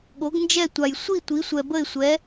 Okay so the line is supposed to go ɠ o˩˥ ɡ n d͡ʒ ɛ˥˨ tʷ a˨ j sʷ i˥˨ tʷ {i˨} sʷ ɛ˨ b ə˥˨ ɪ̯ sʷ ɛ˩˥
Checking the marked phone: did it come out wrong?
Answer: yes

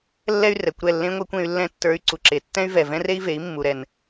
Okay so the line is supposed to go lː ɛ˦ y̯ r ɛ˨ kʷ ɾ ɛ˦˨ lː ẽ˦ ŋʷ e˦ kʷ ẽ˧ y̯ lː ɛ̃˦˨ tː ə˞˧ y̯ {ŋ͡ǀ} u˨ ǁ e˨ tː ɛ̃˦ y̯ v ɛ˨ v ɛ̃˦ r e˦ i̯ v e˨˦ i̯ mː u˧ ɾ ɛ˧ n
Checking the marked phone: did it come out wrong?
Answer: yes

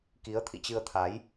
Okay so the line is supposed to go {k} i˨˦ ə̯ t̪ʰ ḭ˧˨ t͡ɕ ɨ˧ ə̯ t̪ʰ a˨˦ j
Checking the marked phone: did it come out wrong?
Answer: no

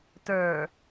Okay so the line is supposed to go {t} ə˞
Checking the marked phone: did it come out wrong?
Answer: no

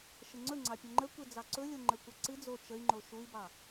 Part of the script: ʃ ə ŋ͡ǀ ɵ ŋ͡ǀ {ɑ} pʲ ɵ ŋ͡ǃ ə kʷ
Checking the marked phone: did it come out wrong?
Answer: no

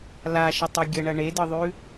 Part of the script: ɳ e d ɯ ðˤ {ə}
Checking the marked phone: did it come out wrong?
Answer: yes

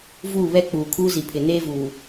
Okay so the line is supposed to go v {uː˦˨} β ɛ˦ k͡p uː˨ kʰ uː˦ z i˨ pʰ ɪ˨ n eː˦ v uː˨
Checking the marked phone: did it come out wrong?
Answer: no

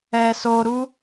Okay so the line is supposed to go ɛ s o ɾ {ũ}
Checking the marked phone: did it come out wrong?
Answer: yes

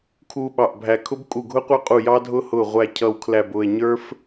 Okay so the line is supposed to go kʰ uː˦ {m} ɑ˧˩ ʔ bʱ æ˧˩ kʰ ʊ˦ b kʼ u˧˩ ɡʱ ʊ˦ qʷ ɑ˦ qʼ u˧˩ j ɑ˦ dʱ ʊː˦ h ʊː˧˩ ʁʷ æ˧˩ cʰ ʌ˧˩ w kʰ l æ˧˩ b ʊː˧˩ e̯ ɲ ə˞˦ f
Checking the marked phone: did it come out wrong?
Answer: yes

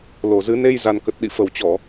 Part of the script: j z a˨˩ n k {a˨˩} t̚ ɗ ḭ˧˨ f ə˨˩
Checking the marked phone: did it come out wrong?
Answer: yes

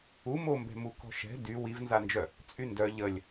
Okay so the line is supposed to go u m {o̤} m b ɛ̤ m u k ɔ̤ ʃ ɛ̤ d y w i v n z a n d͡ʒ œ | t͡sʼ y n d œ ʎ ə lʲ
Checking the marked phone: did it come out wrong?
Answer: yes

